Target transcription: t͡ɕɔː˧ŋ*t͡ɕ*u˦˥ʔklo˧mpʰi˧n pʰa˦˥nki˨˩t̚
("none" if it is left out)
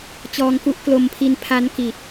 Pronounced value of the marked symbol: k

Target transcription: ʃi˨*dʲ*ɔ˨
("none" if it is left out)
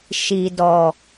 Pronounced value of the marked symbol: d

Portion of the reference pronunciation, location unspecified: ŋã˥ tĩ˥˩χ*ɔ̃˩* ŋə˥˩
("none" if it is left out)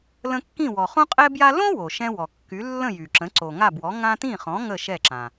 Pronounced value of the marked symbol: ɔ̃˩˥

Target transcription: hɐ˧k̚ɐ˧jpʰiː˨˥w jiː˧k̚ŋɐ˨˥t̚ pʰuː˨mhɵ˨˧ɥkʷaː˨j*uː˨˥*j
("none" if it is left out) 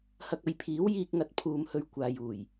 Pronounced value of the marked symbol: uː˨˩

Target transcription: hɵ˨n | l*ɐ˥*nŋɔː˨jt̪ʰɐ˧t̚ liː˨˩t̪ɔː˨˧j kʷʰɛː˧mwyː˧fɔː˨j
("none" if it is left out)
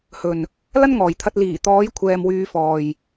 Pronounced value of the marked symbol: ɐ˥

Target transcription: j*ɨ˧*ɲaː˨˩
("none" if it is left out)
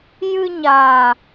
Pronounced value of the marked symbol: ɨ˧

